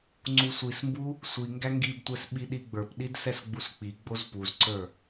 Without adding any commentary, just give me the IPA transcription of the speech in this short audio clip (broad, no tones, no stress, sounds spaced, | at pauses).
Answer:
ŋ͡ǀ u sʷ i s m b u | sʷ i ŋ ɡ æ ŋ ɡ i b tʷ ɛ s ɓ i ɗ i ɡ͡b ə˞ p ɗ i d s ɛ s ɡ͡b u s k͡p i ɡ͡b o z p u z ǀ ə˞